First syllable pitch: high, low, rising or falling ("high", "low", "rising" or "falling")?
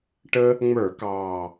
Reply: high